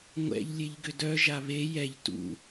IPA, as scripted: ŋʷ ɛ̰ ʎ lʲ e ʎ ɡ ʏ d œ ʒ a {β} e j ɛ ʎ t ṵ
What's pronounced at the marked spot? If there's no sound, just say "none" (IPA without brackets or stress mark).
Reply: β